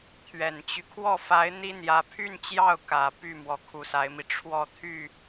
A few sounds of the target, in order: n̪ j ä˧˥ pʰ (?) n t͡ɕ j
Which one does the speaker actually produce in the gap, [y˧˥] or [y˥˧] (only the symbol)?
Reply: y˥˧